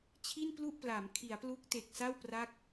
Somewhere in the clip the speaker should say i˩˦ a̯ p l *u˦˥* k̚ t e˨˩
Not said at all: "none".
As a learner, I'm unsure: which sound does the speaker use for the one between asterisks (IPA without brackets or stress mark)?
u˦˥